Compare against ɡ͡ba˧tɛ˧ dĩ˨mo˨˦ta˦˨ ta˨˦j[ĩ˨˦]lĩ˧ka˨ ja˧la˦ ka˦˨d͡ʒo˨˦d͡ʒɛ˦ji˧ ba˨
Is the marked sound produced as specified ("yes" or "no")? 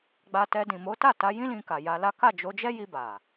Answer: no